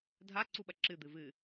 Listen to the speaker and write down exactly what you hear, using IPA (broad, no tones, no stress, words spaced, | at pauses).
dʱaǀuɓɐ ǁɨd̪ɨ vɨ